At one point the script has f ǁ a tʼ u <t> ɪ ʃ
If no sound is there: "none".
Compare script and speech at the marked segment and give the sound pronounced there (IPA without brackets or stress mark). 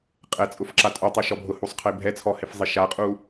tˤ